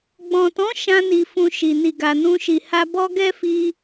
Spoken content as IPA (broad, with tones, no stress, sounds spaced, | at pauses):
ɡ͡b ɔ̃˨ t ɔ̃˨˦ ʃ ã˦ n i˧ f ũ˧ ʃ i˨ n i˨ ɡ a˨ n ũ˧ ʃ i˨ h a˧ b ɔ˦ ɡ ɛ˦ f i˧